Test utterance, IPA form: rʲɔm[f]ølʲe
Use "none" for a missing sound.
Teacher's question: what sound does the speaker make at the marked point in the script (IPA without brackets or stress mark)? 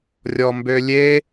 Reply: b